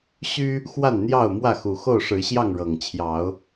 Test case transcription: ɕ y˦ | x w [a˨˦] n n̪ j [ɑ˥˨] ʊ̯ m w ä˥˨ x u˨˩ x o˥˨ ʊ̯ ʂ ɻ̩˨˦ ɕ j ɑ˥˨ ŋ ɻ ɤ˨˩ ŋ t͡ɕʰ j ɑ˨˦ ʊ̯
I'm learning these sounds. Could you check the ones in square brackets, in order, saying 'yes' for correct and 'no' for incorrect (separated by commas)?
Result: no, yes